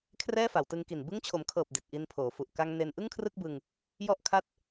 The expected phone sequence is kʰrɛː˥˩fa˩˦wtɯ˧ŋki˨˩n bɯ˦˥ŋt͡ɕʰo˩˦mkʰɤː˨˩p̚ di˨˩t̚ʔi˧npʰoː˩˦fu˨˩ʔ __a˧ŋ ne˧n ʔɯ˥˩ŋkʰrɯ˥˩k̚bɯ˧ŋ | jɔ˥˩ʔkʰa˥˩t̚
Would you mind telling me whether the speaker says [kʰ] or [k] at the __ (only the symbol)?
k